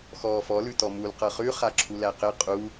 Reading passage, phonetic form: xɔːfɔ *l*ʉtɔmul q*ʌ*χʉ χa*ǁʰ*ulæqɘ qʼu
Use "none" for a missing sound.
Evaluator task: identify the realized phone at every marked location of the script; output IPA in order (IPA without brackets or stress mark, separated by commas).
l, ʌ, ǁʰ